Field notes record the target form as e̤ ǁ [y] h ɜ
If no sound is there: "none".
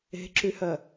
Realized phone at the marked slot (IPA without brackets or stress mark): y